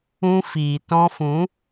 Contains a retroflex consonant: no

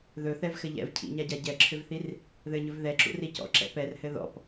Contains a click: yes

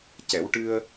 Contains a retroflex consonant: yes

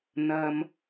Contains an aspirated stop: no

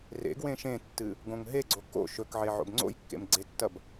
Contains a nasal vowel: yes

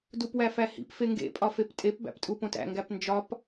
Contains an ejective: yes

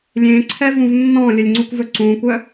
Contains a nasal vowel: yes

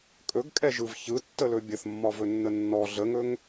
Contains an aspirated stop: no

